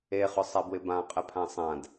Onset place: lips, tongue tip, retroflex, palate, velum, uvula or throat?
uvula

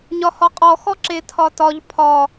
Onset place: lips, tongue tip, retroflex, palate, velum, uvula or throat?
palate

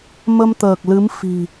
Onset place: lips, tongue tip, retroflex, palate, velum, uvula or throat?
lips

